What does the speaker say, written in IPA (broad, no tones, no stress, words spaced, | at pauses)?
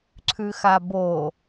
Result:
ǀʰʉxabo